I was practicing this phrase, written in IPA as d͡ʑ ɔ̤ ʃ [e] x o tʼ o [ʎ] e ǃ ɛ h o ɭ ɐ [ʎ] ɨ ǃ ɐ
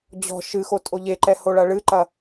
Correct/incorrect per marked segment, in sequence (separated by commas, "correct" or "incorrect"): incorrect, correct, incorrect